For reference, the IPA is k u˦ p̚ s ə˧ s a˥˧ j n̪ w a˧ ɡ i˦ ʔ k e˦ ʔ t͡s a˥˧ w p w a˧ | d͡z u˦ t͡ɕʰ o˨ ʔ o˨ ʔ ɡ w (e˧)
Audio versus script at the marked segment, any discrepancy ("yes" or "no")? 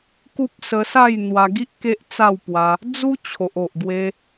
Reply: no